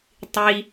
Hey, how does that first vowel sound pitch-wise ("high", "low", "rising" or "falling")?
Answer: high